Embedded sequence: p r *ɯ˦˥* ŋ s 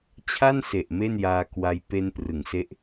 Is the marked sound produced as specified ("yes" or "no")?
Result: no